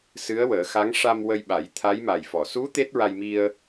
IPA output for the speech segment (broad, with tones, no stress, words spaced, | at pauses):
sɨ˧˥ə̯wəː˨˩˦xa˧˥ŋ ʂa˧mwə˧jɓa˨˩˦j t̪ʰa˧˥jma˨˩jfɔ˨˩˨ su˧˥ t̪e˦˥t̚ɹa˧jmi˧ə̯